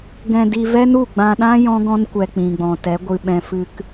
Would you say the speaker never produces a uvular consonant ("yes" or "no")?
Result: yes